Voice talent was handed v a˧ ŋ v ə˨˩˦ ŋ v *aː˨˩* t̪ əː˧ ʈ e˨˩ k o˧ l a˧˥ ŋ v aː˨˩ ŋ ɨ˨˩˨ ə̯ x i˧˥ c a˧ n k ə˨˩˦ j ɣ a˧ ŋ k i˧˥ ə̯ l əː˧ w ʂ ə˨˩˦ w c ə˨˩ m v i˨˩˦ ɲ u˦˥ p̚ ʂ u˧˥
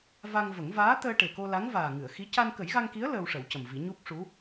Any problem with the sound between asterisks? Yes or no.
yes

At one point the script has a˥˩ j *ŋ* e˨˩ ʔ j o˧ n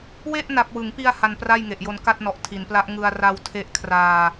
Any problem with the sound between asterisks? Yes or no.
no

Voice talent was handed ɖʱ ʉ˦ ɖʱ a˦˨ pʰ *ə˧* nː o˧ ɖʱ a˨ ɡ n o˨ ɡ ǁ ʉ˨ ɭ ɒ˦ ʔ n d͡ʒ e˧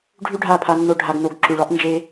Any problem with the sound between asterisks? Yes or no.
yes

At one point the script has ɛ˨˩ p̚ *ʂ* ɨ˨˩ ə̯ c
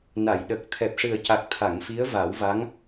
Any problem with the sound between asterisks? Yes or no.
no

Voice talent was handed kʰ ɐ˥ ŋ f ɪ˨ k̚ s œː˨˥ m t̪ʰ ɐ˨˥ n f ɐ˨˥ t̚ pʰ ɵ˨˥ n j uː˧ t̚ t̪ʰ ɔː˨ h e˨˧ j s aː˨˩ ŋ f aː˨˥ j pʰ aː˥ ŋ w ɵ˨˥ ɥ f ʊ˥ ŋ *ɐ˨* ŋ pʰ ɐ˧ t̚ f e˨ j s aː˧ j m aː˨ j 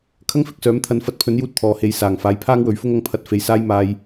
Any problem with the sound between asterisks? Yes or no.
yes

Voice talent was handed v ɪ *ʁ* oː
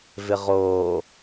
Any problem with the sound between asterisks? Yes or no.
no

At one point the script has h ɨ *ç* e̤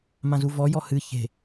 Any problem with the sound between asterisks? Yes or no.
no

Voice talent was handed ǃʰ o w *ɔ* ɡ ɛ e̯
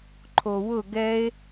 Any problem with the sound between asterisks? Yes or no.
yes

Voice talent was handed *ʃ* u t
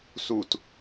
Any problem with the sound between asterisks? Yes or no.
yes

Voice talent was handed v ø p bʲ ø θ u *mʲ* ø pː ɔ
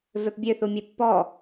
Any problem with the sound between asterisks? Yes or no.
no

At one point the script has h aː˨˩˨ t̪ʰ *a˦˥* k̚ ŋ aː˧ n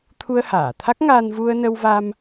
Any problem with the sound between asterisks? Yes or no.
no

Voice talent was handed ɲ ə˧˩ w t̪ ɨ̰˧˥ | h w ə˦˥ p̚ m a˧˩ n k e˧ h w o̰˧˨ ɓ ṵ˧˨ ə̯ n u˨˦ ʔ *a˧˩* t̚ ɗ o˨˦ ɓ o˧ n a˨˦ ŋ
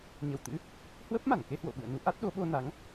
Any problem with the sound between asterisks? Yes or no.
yes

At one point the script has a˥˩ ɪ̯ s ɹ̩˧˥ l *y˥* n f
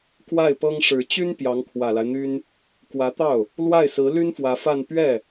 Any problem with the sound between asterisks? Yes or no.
no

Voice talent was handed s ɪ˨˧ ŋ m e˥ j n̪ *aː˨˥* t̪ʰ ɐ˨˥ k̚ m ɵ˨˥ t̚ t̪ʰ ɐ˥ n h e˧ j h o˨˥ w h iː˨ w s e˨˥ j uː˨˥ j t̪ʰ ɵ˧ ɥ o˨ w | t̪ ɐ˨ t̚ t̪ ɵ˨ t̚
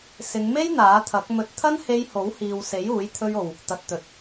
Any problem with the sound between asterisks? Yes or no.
no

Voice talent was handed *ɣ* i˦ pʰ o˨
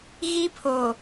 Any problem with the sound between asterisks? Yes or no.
no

